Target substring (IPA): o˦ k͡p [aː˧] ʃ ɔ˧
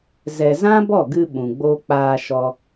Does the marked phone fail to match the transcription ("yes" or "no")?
no